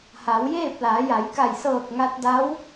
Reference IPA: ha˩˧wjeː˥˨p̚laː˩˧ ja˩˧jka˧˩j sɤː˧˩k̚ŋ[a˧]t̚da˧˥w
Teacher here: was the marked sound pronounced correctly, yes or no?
yes